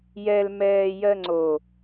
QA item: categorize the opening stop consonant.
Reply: click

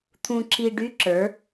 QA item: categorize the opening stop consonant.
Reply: aspirated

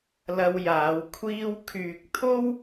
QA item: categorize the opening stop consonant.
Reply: aspirated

